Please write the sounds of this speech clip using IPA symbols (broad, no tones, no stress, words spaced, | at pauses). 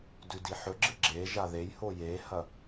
dʉdiħɵɡ͡ǁɨ ɡ͡ǁe ʒaðejho jehɐ